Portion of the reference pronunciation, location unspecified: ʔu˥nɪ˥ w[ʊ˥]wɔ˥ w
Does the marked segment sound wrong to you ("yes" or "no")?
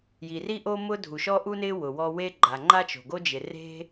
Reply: yes